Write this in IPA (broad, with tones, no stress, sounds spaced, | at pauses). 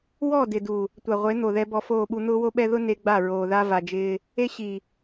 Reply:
w ɔ˦˨ d ɪ˨ d u˨ | tʷ a˨ ʁʷ e˨˦ n̪ o˨ ð ɛ˦ b ɔ˦ f oː˦˨ ɓ u˦ n̪ ʊː˦ w o˦ ɓ ɛ˦ ð ʊ˦ n e˦ ɡ͡b a˦˨ ɹ oː˨ ð a˦ v a˨ d͡ʒ ɪː˦ | e˦ ɕ i˨